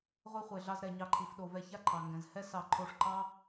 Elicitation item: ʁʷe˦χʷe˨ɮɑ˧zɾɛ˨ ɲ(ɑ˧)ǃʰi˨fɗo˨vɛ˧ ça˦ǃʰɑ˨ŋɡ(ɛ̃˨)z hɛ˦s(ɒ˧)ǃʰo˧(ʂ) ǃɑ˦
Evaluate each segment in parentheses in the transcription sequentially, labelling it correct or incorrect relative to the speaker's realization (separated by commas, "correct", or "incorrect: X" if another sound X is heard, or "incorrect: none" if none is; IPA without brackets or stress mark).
correct, correct, incorrect: ɑ˧, correct